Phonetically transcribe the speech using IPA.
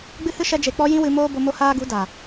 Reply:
ɡ͡b ɨ˦ h ɨ˦ ʃ ɛ˦ d͡ʒ e˧ k͡p ɔ˦ j ĩ˦ w ɨ˧ m oː˦ b o˧ m o˧ h aː˧ ɡ u˨˦ d a˨

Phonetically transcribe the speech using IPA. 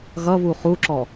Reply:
ɣ ʌ β u χ u ǁ ɔ

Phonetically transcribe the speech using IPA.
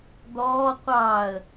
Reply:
d̪ ɔː qʷ ɑ ə̯

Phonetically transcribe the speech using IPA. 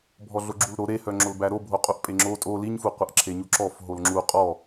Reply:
bʱ ɔ ɮ o ɡ͡ǁ u l ɾ o ɾ e h œ ŋ͡ǁ o l b æ ɾ o bʱ o qʼ u ʔ pʼ e ŋ͡ǁ o tʼ o l i ɲ f u qʷ ə ʔ ǁʰ e ɲ u ǁ ɔ f ɦ o l ŋ͡ǁ u qʼ ɔ

